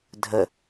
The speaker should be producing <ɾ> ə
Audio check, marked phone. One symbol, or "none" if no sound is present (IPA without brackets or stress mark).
dʱ